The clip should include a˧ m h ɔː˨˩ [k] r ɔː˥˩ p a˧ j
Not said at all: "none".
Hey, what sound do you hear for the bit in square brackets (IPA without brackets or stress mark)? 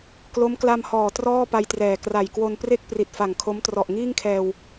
t